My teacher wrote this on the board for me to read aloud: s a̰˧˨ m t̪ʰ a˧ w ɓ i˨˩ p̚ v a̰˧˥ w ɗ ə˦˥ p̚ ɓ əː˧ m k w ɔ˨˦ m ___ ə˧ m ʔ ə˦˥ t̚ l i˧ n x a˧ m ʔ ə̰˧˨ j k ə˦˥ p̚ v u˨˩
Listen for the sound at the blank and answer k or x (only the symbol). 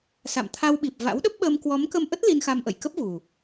k